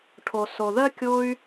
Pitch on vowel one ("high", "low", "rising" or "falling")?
low